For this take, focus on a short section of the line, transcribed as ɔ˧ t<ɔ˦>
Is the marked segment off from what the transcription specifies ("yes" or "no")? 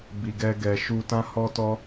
no